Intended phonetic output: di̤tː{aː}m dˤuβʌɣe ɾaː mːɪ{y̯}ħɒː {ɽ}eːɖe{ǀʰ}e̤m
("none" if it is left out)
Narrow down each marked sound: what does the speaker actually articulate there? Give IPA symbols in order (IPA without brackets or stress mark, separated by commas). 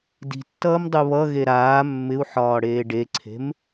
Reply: ʌː, u̯, ɽ, ǀʰ